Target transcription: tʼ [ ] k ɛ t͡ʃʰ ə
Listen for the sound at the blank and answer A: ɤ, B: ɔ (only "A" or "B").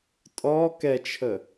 B